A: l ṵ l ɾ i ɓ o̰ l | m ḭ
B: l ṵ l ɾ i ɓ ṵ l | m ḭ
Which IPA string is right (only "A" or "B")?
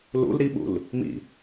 B